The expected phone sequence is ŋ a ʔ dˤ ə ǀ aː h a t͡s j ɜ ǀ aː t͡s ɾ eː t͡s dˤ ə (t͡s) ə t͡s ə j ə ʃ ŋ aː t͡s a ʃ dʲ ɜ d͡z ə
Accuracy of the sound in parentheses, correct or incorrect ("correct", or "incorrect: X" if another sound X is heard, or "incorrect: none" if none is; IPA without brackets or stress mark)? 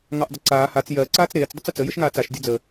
correct